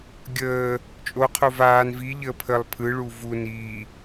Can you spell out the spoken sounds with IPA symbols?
ɡʲəː | t͡ʃʼoqʰo vaːn viʎəː pʰəlˠ pʰɯɭu vu ni

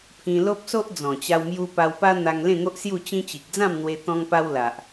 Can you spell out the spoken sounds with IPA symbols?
pʰĩ˧lo˦p̚so˦ʔ d͡zɔ̃˨˩t͡ɕa˧wmju˧ pa˧wpa˦ n̪a˧ŋlẽ˥˧ŋo˦ʔ sju˥˧t͡ɕĩ˦ t͡ɕi˨k̚d͡zã˥˧mn̪we˧ t̪ɔ̃˧ŋpa˧w la˨ʔ

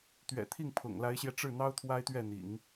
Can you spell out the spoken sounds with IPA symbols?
t̪ɥɛ̰˨˩t̪ʰi˥˩ŋpʰʊ̰˨˩ŋ la˧˥ɪ̯ɕjɛ˧ ʈ͡ʂɻ̩˥˩n̪ɑ˥ʊ̯ t̪ʰwa˥ɪ̯t̪ɥɛ˥˩ n̪ḭ˨˩˦ŋ

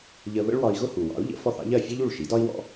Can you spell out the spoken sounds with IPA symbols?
ʎə˧ βə̰˥ɭwɒ˧i̯ɣʊ˥hu˩ wɑ̰˩˥u̯ʎə̰˩˥fɔ˥˩θ ɑ̰˥ʎɜ˥˩ fʲɔ˥ʎ u˥˩ɭʃi˩˥dɒ˥i̯ wɔ̰˥

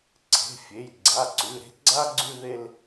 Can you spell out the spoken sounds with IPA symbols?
ǀʰe̤˩˧˩fʲe˩˧˩j ɡ͡ǀa˩˧˩ǀʉ˩˧˩ɾe̤˦ ɡ͡ǀa˦ ɡ͡ǀʉ˦ðe˦l

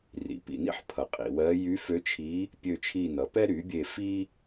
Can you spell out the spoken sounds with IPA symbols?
rḭ˩˥pḭ˨nḭ˥ħ pʰʌ˨ qʼḭ˨wɜ˧˥ jy˧˥fø˧˥t͡ʃʰi˧˥ | pʲø˦˨t͡ʃʰi˦˨nʌ˩˥ pɛ˥ɾy˩˥bʲe˦˨ fi˥

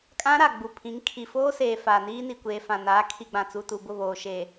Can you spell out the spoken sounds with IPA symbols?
kʼã˦ɾa˨ ɡ͡bu˨pʰĩ˨˦ŋ kʰi˨foː˦ seː˨ faː˨niː˦ni˨kʷeː˨ fã˨naː˨˦kʰi˨ ɡ͡bã˨t͡su˨tu˨ bʊ˦˨βoː˨ ʃeː˨

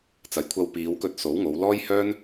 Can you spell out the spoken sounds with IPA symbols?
t͡sɐ˨jkʷʰɐ˧w piː˨˧wkɵ˧t̚ so˨˥wŋo˨˧w lɔː˥jhœː˥n

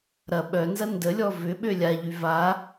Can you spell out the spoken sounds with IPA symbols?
ɾɐ ɓœnzɐ ndəlʲɔ vʏɓø lʲaʎy va

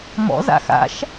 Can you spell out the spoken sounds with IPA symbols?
mɔ̰za̰ xa̰ʃ

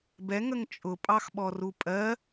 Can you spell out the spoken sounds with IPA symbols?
bɛ ŋəŋt͡ʃʼʊ pʼɑxɓɔrupʼɜ

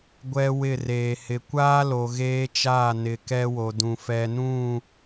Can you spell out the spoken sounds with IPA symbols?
ɡʷɛ˦wɪ˦˨reː˨ hɪ˨kʷaː˦lo˨ ɣeː˦t͡ʃaː˦˨nɪ˨ kɛ˦wo˨dũ˨ fɛ˨nũ˦˨

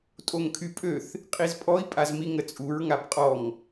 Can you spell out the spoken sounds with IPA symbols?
tʼoŋkʰypʼøθ | qʼizpʼɔi̯ pʼazmiŋət͡sʼuɹ ŋabqʼɔŋ

